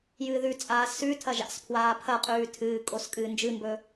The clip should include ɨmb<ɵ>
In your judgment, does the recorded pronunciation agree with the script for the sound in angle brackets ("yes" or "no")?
yes